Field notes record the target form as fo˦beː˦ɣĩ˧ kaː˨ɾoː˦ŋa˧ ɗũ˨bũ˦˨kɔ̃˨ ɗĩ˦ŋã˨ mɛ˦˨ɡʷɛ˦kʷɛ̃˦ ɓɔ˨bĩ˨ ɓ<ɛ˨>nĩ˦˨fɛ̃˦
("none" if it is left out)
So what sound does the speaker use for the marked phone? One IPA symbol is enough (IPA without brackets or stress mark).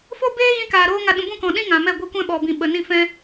ə˨